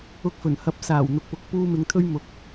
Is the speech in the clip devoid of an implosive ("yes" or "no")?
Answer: yes